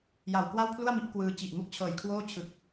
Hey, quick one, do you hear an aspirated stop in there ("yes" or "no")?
yes